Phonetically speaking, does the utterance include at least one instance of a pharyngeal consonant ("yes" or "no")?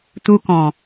no